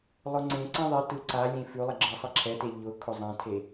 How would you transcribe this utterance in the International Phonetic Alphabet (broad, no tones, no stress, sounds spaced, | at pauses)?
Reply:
lˠ ʊ ŋ͡ǀ ẽ ǀ ã ðˤ e t ɯ ǀ a lʲ ẽ f ʉ lˠ ɛ ɡ͡ǁ ɤ sˤ e ǁʰ ɛ t e ʎ ʊ kʰ ʊ zˤ ã tʰ e